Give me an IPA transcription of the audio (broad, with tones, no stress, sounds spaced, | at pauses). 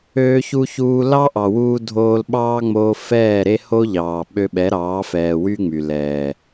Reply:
øː˧ ç u˧ ç uː˧ l ɑ˦ ʔ ɑ˨ w uː˧ dʱ oː˧ l ɓ ɑː˦ ŋ͡m oː˧ f ɛː˦˨ ɾ e˦ h o˦ ʎ ɑː˨ ɓ ø˧ ɓ ɛ˨˦ ɾ ɑː˨˦ f ɛː˨ w y˦ ŋ͡m y˨ l ɛː˨